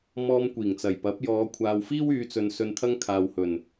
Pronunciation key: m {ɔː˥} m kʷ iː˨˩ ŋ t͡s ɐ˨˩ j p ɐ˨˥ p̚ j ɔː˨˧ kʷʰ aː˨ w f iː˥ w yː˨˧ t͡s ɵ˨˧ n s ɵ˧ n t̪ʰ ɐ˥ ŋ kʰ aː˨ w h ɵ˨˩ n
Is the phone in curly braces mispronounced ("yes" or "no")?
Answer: yes